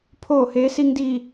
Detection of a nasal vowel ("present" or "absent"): absent